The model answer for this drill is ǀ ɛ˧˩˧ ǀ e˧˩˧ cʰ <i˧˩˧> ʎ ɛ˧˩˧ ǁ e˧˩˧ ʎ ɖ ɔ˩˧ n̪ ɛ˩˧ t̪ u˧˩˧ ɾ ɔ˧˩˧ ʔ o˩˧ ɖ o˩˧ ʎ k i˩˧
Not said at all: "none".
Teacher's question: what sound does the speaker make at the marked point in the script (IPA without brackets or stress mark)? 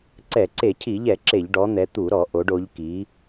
i˧˩˧